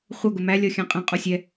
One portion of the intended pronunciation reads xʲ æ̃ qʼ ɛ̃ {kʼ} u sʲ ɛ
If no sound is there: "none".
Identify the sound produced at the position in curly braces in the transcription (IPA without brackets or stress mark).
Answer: qʼ